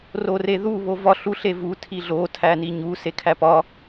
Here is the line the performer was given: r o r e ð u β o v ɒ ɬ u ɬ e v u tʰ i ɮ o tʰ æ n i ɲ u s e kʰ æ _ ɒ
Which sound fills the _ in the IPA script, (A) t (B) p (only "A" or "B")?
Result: B